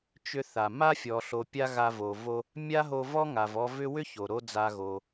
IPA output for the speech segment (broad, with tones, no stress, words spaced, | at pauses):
t͡ʃʏ˧θa˩ ma˥fʲɔ˩ɬo˩ pʲa˥ɣa˧vo˩ vo˧ | mʲa˥ɦo˧vɔ˥ ŋa˩vɔ˧vʏ˥ wʏ˥ ço˩ɾo˥d͡za˧ɣo˩